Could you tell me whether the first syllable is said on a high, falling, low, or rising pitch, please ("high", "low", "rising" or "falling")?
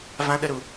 high